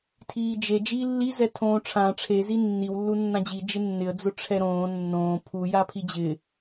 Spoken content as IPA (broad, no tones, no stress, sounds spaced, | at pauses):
tʰ iː d͡ʒ e d͡ʒ iː lː i z ɛ tʰ õː ʈ͡ʂʰ ã ʈ͡ʂʰ e z i nː i w lː u nː ã d͡ʑ i d͡ʒ ɪ nː ɪ ə̯ d͡z ʊ ʈ͡ʂʰ ɛ ɾ õː nː õː pʰ u j a pʰ i d͡ʑ ɪ